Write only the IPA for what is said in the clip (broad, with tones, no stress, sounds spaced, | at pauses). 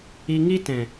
i˧ ŋ i˦ t ɛ̃˨